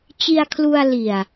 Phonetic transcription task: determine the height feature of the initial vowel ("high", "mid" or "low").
high